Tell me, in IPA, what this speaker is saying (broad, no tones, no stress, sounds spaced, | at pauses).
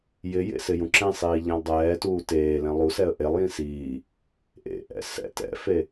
j ɪ j ḛ s ɪ j ũ ǁ ɛ̃ sˤ iː ʎ ɛ̃ lˠ dˤ ɛː t uː t eː l ɛ̃ lˠ u s ɛ ə̯ ʔ e lˠ j ĩ s iː | ʔ ḛ ʔ ɛ̰ s ɛ̰ t ɛ̰ f e